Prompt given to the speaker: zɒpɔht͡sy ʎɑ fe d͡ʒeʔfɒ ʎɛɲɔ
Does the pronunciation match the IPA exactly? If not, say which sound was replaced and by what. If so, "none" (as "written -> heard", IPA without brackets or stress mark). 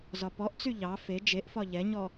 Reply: h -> ʔ